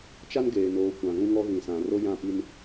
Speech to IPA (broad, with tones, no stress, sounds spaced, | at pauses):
t͡ʃ a˦ n ɡ eː˨ n oː˨˦ kʷ ã˨ ɣ ũ˦ ŋ ɔ˦ ɣ ĩ˨ s ã˨ r o˦ j ã˦˨ p i˦ n